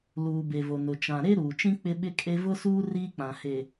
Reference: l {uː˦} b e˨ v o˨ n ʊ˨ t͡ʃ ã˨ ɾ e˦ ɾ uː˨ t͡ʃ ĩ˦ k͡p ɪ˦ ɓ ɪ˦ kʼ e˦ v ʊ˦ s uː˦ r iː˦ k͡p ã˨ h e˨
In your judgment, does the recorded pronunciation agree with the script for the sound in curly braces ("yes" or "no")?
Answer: no